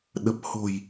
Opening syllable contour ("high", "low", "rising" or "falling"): low